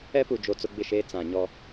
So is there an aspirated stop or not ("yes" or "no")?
no